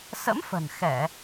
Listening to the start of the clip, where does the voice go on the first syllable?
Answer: rising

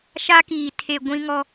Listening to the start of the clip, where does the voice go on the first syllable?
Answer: high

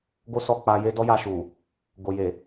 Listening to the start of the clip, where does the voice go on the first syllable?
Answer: high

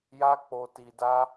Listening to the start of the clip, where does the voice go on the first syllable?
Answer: high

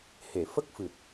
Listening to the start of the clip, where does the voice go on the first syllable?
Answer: low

